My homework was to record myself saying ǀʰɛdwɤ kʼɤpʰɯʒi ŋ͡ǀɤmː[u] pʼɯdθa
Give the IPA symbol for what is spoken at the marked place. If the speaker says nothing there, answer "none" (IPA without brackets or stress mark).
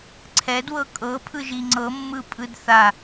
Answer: ɯ